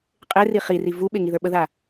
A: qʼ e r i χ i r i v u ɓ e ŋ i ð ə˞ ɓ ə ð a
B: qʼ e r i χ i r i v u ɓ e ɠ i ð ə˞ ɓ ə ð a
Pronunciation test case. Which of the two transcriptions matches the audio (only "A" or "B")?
A